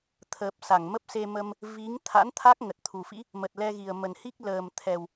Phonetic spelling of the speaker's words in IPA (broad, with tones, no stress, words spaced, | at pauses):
t̪ʰəː˨˩p̚ sa˧˩ŋmə˦˥p̚se˧mə˧m | vi˨˦ŋ t̪ʰa̰˧˥nt̪ʰa˦˥k̚ ŋə˨˩t̚t̪ʰu˨˩fḭ˧˥ | mə˨˩t̚lɛ˧ɣi˨˩ə̯ mə˨˩nhi˦˥k̚ ləː˨˩m t̪ʰɛ˨˩w